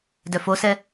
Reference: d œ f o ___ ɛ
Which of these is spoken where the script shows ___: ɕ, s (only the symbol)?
s